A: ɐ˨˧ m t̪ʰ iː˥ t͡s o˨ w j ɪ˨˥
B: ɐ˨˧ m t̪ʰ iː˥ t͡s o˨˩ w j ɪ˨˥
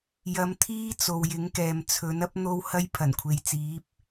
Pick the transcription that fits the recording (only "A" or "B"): A